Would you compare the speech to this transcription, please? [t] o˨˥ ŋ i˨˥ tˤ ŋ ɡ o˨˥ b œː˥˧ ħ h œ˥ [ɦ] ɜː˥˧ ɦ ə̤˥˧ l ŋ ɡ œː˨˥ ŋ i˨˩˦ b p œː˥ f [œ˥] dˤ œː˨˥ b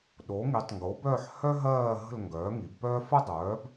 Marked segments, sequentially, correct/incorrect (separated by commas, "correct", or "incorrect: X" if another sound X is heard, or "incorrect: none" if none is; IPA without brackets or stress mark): incorrect: ɗ, correct, incorrect: ə˥